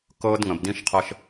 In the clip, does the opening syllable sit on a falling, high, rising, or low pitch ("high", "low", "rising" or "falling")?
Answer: high